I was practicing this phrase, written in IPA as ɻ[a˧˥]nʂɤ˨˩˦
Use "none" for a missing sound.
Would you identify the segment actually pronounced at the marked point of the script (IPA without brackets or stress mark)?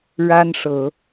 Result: a˥